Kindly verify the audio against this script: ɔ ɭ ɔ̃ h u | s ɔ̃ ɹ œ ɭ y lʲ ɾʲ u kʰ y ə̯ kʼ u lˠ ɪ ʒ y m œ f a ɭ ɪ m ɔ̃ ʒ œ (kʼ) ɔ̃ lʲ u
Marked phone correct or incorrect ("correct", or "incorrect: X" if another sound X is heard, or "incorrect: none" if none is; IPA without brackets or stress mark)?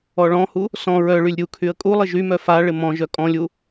correct